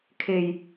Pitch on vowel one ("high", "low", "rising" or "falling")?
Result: low